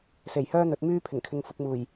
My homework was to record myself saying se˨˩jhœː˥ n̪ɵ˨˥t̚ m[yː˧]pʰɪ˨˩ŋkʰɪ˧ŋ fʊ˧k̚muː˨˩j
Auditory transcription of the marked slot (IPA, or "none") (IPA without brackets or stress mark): yː˥